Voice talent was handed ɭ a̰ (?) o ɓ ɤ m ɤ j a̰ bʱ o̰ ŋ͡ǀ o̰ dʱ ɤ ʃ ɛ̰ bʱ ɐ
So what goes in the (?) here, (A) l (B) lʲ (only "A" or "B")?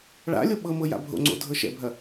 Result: B